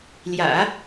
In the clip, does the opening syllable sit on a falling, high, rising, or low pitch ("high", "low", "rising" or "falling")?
low